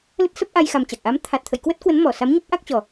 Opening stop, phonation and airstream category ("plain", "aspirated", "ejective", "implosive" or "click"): plain